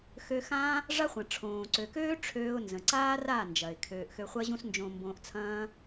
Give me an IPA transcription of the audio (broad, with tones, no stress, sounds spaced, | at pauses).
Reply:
x øː˧ x ãː˦ | ʐ a˦ χʷ ɐ̃˨ ʈ͡ʂʰ õː˨ ǀ ø˨ k øː˦ ʈ͡ʂʰ øː˦ ʊ̯ n z ə̃˨ ǀ aː˦ r aː˦˨ n d͡ʒ ɐ˨ ɪ̯ kʰ øː˧ ʔ x ø˧ χʷ ɐ˦ ʑ ũ˦ s n d͡ʒ õ˧ m b õː˧ ʔ t͡sʰ ɐ̃ː˦